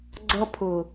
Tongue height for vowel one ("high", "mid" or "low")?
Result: mid